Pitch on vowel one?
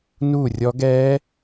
falling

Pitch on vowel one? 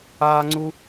high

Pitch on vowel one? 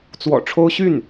low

